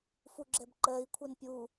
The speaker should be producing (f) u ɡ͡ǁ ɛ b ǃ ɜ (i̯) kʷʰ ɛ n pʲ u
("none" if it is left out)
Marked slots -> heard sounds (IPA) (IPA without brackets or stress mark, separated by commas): f, i̯